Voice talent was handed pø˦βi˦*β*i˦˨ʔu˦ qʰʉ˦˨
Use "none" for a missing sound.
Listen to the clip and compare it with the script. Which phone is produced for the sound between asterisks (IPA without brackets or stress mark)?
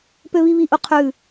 β